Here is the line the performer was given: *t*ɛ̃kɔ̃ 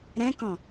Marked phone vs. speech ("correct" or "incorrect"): incorrect